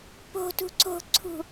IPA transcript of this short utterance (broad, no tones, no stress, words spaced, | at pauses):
po̤tṳ ǀo̤ǀʰṳ